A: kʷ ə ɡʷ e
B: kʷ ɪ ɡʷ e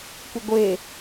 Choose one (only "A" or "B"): B